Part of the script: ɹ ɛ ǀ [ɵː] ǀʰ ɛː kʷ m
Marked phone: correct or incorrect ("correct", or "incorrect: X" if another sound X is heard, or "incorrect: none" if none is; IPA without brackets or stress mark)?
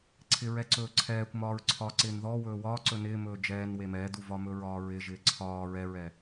correct